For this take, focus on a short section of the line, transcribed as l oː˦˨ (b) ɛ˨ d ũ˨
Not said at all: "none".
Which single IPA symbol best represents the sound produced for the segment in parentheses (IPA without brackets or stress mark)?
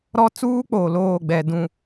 ɡ͡b